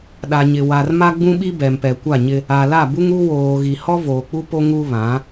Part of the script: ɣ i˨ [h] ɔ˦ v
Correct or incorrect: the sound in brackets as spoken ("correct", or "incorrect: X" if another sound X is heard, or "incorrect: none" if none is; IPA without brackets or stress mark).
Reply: correct